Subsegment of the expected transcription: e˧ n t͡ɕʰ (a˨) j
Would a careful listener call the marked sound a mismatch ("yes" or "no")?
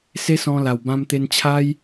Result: yes